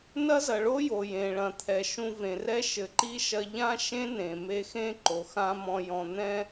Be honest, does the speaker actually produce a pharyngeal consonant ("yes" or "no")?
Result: no